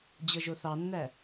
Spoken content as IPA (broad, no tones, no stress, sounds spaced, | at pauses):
d͡ʑ ɤ ʒ o θ ɑ nː æ